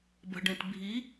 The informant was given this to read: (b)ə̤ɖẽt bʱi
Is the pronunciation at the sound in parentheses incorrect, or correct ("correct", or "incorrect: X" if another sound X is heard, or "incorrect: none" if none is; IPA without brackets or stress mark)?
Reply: correct